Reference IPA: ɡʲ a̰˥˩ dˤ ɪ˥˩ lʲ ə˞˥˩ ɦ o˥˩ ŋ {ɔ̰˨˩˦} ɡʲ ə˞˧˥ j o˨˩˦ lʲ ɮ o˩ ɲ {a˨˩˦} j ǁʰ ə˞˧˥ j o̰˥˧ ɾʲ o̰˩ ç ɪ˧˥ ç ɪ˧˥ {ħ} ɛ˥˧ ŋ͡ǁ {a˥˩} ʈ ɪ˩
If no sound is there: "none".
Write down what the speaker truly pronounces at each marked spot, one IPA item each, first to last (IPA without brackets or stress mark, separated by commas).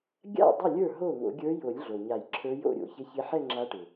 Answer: o̰˨˩˦, a˨˩˦, ħ, a˧˥